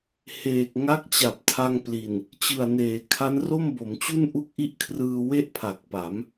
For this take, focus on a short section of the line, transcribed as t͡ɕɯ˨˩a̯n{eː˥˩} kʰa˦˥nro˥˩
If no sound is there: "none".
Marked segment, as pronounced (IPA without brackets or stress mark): eː˩˦